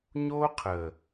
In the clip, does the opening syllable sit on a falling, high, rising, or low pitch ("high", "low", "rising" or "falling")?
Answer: high